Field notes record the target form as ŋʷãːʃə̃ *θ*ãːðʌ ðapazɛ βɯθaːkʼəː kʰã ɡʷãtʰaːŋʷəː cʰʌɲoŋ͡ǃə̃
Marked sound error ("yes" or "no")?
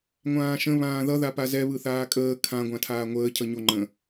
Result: yes